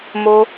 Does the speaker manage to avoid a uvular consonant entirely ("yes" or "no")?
yes